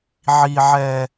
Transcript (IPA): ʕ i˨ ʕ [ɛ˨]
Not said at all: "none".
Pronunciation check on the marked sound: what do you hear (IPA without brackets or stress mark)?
ɛ˨